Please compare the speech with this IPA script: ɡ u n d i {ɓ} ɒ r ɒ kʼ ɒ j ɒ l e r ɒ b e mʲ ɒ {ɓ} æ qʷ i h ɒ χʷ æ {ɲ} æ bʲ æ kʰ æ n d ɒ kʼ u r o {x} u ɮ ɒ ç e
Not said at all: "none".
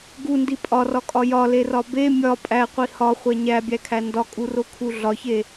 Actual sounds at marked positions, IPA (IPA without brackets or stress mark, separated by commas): pʼ, pʼ, ɲ, kʰ